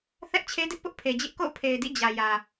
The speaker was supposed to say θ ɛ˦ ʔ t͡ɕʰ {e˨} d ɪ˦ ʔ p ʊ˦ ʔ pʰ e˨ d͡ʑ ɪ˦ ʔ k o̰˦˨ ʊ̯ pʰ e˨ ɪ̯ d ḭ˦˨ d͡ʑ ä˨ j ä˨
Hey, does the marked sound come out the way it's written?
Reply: no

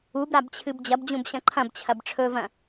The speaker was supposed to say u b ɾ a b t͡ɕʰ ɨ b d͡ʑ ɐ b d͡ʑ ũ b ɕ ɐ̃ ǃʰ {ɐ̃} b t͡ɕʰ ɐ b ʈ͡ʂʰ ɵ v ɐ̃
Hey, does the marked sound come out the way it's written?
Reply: yes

